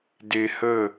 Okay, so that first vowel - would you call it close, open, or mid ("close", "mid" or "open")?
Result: mid